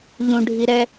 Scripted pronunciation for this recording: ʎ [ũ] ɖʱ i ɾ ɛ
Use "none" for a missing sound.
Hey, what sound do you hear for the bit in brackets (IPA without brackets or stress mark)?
ũ